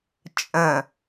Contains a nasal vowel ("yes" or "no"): yes